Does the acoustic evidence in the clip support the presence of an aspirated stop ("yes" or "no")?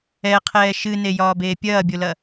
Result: yes